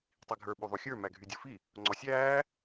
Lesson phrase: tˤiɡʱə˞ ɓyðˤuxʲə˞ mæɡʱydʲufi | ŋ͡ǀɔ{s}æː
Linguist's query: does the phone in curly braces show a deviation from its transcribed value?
yes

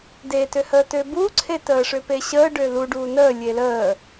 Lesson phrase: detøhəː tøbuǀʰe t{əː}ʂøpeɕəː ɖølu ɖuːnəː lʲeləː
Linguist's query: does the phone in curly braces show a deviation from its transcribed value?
no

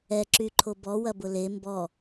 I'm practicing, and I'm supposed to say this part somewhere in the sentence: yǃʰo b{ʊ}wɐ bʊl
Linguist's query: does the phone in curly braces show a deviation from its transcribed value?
yes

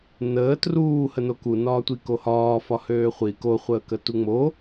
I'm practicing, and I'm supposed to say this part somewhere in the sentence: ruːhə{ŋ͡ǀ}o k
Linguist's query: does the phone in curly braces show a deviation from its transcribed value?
yes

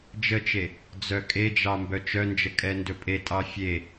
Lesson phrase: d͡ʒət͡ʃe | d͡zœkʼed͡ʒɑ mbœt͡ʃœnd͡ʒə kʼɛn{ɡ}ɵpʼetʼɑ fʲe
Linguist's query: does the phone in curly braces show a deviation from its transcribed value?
yes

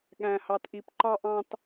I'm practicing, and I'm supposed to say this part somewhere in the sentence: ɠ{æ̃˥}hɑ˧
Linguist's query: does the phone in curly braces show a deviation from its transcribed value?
yes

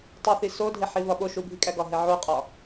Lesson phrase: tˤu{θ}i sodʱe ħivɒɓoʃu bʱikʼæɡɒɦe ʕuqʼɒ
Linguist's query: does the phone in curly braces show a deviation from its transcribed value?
no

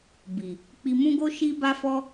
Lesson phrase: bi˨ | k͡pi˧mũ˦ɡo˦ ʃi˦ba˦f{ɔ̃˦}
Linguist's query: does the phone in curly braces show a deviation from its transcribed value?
yes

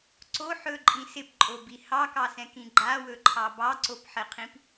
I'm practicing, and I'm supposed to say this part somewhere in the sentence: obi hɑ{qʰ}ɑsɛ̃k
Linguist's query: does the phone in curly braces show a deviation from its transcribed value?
yes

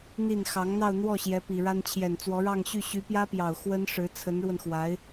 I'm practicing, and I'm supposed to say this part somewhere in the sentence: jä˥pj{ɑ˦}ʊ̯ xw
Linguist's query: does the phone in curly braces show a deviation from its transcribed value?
yes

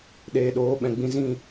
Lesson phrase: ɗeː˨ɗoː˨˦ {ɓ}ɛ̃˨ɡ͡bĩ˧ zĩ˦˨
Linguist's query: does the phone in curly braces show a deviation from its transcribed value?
no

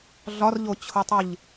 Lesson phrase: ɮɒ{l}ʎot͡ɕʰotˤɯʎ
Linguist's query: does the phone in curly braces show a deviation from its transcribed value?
yes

